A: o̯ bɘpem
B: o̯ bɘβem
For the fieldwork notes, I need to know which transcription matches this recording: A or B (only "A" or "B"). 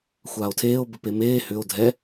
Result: A